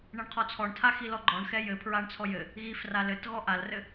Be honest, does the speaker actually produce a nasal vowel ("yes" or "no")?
no